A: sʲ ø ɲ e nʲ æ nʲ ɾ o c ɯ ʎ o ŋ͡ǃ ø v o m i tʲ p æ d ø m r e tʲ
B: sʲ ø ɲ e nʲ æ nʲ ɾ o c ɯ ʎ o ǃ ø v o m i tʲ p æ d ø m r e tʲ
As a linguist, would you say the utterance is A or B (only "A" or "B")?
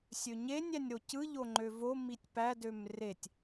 A